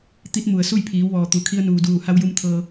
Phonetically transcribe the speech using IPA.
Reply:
t̪ i˧˥ t̚ m u˩ ə̯ s u˥˨ j pʰ iː˩˧ w ʋ ɔː˩ t̪ u˩ kʰ i˧ ə̯ n uː˩ d uː˧˩ h a˧ w j u˧ m t̪ʰ ɤː˧

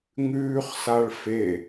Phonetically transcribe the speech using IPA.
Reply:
ŋ ʉː χ s a ɭ f e

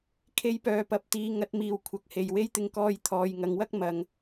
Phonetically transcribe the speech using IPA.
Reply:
kʰ e˧ j p œː˨˧ p ɐ˨˥ p̚ t̪ iː˨˧ ŋ ɐ˨˥ t̚ m iː˨ w kʷʰ ɐ˨ k̚ h e˨ j w e˥ j t̪ ɪ˧ ŋ k ɔː˧ j t̪ʰ ɔː˨ j ŋ ɐ˨˧ ŋ w ɐ˥ k̚ m ɐ˨˧ ŋ

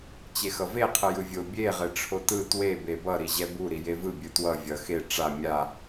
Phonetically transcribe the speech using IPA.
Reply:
t͡ɕ e x ʌ v e qʰ ɯ j ɯ vʲ o bʲ e ʁ e ʈ͡ʂʰ o t ɯ t w e b e b ʌ ɾ i ʑ ɛ b u ɾ i j e v ɯ bʲ ɯ t w ʌ vʲ ʌ x e ʈ͡ʂ a mʲ a

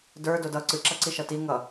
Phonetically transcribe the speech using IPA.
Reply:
d ə˞ d o d ʌ ǀ ɨ ǁ ʌ ǀ i ʃ ʌ t i ŋ ʌ

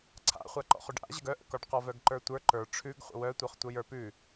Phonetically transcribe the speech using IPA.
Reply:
ǀʰ a̰ χʷ a ǃ ɔ̰ χ ʉ ɖ ʔ a̰ ʑ ə ɡ œ ʔ ə̰ k ɔ ɖ q ɔ v œ ɡ ǃ ə˞ tʷ ə˞ ǃ ə˞ ʈ͡ʂʰ ʉ ɡ χʷ ə̰ w œ tʷ œ χ tʷ ə j ə˞ p ʉ

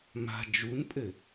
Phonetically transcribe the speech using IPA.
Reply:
m a̤ d͡ʒ u n pʼ ɘ

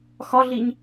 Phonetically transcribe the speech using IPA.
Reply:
x ɒ ɮ i ɲ

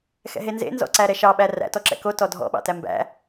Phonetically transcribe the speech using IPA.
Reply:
x ɛ̰ ɦ e n z ḛ n z ɔ̰ ǀ æ ɾ ɛ ʃ ɑ ɓ æ r æ̰ t ɔ ǁ ɛ̰ k o t ɔ dʱ ɔ̰ ɓ ɑ̰ t æ m b æ̰

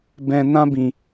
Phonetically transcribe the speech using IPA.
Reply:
b ɛ̃˧ n ã˦ b ĩ˨

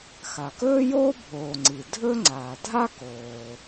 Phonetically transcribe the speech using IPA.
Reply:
x a˩ k ɵː˥ j oː˥ bʱ oː˩ ŋ͡ǀ i˩ dʱ ɵ˥ ŋ͡ǀ aː˩ dʱ a˥ k oː˩

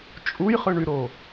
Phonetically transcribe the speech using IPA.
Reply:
t͡ʃʼ u j χ ɯ ɳ y ɾ o

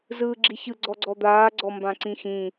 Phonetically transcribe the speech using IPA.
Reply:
z ɯː ɡ͡ǁ i ç ɯ ɡ͡ǀ ɔ ɡ͡ǀ ɔ d̪ aː ɡ͡ǀ ɔ m b ã ǀ ĩ x ĩ

